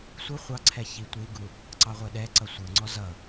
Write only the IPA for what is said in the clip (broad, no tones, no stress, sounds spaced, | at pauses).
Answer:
sʷ ə χʷ ɑ ǀʰ ɛ ç i tʷ i ɡ u | ǀ ɑ ʁʷ ɛ ɗ ɛ ǀ ʌ sʷ ə˞ ŋ͡ǀ ɔ z ʌ